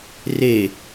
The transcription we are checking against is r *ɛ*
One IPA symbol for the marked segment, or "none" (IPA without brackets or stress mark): e